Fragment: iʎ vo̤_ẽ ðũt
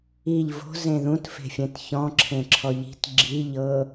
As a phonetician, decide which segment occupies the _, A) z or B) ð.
A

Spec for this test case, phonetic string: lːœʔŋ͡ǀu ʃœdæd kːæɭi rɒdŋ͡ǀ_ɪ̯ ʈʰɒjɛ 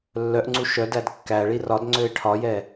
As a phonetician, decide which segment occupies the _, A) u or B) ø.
B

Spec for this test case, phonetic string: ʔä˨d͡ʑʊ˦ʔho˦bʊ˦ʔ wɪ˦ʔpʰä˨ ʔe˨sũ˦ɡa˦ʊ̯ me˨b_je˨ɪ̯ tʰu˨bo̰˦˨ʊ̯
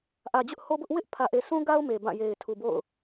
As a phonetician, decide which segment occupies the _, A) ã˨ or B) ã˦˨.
B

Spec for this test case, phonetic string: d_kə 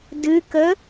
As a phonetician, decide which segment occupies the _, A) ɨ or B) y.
A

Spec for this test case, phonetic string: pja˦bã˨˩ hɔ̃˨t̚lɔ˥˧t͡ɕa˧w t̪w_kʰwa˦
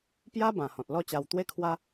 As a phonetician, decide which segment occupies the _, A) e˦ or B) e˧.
A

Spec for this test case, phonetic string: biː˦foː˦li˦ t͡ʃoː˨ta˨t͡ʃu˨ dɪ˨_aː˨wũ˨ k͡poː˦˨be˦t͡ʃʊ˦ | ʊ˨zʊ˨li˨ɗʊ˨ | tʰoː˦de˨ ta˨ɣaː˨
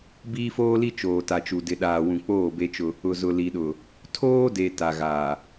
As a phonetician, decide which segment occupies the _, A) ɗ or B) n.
A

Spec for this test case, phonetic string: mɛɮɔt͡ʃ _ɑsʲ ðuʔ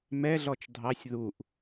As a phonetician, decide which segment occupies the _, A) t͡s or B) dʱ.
B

